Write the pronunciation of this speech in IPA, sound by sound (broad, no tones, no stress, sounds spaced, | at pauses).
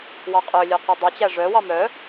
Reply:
w ɑ qʼ ø lʲ ø q e dˤ œ t͡ɕ æ ʐ œ w ɑ m œ